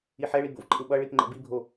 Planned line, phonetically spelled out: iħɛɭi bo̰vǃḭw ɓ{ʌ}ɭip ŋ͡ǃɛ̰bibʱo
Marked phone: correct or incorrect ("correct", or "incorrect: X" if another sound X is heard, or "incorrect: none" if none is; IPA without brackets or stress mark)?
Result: correct